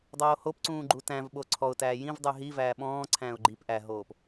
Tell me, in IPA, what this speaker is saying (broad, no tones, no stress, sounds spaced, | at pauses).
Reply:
dˤ oː h o p ǀ ũː ɡ͡ǃ u t æ̃ v ɓ o ǀʰ ɔ ʊ̯ t æː j ĩ v dˤ y ɦ i v æː ɓ ɔ̃ː ǀʰ æ̃ː ʊ̯ ɡ͡ǃ i p ʔ æ ɦ oː p